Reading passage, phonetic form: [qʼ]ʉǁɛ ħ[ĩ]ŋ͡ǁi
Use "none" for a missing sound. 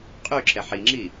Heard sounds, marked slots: qʼ, i

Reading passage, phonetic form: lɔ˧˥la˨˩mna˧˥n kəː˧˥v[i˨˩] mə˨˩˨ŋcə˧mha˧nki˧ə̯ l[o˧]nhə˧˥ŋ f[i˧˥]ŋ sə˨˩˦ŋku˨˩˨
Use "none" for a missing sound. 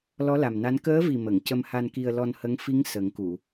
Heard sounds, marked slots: i˨˩, ɔ˧, i˧˥

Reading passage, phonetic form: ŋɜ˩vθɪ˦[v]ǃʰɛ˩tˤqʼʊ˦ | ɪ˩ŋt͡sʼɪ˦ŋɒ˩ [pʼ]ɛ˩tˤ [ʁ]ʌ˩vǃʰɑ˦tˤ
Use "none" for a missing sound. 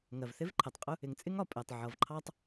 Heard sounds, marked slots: v, pʼ, ʕ

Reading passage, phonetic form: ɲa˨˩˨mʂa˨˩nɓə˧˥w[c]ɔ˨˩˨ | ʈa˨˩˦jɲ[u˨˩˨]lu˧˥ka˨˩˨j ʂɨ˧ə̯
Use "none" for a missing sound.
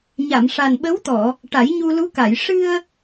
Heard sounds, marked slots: t̪, u˧

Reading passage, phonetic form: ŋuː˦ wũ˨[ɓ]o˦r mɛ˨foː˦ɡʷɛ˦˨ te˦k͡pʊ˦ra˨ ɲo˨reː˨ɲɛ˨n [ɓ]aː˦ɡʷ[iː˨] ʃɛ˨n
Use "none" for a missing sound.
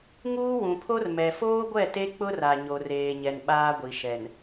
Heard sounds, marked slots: pʰ, ɓ, i˨

